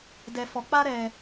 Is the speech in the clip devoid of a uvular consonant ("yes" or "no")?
yes